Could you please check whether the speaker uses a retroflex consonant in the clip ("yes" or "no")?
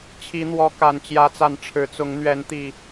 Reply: yes